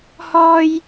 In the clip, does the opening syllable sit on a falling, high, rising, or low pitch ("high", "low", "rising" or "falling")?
high